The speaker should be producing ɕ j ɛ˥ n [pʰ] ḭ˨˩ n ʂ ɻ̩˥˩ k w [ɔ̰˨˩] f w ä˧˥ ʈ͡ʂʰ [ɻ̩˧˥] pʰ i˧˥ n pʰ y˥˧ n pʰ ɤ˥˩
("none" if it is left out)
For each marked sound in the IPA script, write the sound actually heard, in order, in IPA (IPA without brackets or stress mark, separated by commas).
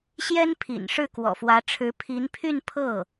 pʰ, ɔ̰˨˩, ɻ̩˧˥